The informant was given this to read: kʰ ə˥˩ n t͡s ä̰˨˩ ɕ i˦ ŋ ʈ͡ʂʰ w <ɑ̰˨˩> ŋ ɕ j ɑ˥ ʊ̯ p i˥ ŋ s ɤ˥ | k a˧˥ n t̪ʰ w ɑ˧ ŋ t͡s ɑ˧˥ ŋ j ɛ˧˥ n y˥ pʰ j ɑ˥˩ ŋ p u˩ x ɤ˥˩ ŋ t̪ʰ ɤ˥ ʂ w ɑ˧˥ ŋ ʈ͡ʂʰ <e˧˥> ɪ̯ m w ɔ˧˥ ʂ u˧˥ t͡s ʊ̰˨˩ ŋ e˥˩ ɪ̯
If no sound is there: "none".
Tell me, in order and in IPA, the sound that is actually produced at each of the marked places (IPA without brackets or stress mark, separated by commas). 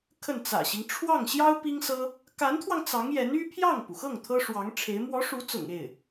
ɑ˥˩, e˧˥